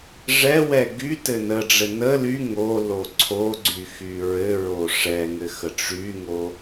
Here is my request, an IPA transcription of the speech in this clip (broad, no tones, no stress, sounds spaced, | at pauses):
ʐ ɛ w ɛ ɡ y t ɘ n ə ɖ͡ʐ ɘ n ə l y ŋ o l o ǀʰ o ɡ͡ǀ y x y ɹ ɘ ɹ o ʂ ɛ ŋ ɘ x ə ʈ͡ʂ y ŋ o